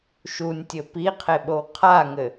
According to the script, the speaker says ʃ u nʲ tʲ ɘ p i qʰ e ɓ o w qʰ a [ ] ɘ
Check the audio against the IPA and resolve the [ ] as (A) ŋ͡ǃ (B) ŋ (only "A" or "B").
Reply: B